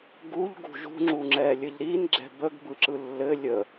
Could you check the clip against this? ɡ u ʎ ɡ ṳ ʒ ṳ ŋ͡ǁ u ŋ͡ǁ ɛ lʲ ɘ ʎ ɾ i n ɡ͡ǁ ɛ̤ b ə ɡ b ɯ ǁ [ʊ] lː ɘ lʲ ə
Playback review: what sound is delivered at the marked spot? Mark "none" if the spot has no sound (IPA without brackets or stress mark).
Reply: ɯ